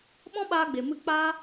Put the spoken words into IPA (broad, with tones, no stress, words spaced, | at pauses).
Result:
ɓɔ̃˦ɓaː˧ɡ͡be˨mɨ˧ k͡pa˦